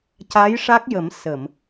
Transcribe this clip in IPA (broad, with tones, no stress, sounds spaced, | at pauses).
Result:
c a˧˥ j ʂ a˦˥ k̚ j ə˨˩˦ m s ə˨˩˨ m